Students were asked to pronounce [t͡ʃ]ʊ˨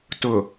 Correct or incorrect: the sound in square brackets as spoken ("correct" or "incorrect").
incorrect